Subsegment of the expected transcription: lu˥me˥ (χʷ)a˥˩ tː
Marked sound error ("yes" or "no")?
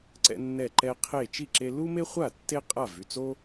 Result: no